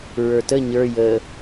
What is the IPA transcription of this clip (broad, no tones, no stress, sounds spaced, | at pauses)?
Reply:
ɹ ə˞ t ə ɲ ə˞ j ə